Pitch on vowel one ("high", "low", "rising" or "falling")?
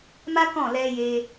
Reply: high